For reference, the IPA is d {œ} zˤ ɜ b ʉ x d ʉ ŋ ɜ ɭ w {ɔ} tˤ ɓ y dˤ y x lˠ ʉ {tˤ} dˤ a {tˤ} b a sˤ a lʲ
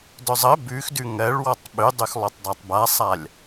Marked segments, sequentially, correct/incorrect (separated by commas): correct, correct, correct, correct